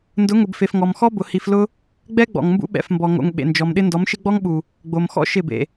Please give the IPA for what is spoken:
n d ʊ˨˦ ŋ ʊ˨ b f e˨ f ŋ ɔ˨ m x ɔ˦ b ʊ˨ h i˨ f l ʊ˦ | ɡ͡b ɛ˦ ɡ͡b ɔ̰˨ ŋ m b ṵ˦ ɓ ɛ̰˨ f m b ɔ˨ ŋ o̰˨ ŋ ɓ ḛ˨ n d͡ʒ ɔ˨ m ɗ ɪ˦ n d ɔ˨˦ m ʃ ɪ˦ ɡ͡b ɔ˦ ŋ ɓ u˨ | ɡ͡b o˨ m x ɔ̰˦ ʃ ɪ˦˨ b ḛ˨

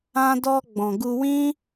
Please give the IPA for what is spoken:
ã˧ d ɔ˧ ɡ͡b ɔ̃˨ ɡ u˧ w ĩ˦

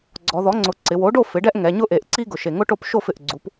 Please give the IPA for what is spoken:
ɡ͡ǀ ɔ˩˧ ð ɔ˩˥ ŋ͡ǀ ʊ˨˩ ǀ ɪ˩˧ w o˩˥ ɖ o˥˨ f ɪ˩˥ ɖ ɛ˥ ʔ ŋ ɛ˩˧ ɲ ʊ˥ ʔ e˩˧ ʔ ǀ i˥ ɡ ʊ˨˩ ʃ e˨˩ ŋ ʊ˥ ʈ o˥˨ p ʃ o˥˨ f ɪ˨˩ ʔ ɡ͡ǀ u˩˥ p

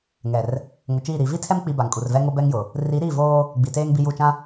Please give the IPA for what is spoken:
ŋ ɛ˨ r | ŋ ʊ˨ t͡ʃ iː˦˨ ɾ i˨˦ v i˦ tʰ ɛ˦ m k͡p i˨ b a˨ ŋ kʼ u˨ r v ɛ˦ ŋ o˦ b ɛ˦ ŋ j ʊ˨ | r i˨˦ ɾ i˦˨ v oː˦ | ɡ͡b i˨ t eː˦ ŋ b i˦ j u˦˨ t͡ʃ ã˦

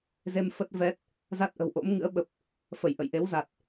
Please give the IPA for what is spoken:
z e˧ m f ə˦˥ t̚ v ɛ˦˥ t̚ | z a˦˥ t̚ ʔ ə̤˨˩ w ʔ o̰˧˥ m ŋ ɨ̰˧˥ ə̯ ɓ ə˨˩ p̚ | f ə˧˩ j ʔ ə̰˧˨ j ʔ e˨˦ w z a˨˩ t̚

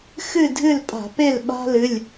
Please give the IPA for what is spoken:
x ɨ˦˨ dʱ ɨ˦˨ l pʼ a̤˧˩˧ p e˦˨ l ɓ a̤˦ l ɨ˩˧˩ lʲ

